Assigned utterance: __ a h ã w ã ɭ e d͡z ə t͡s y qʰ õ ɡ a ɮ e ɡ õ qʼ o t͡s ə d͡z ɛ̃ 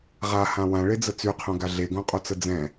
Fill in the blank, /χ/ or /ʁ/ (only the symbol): ʁ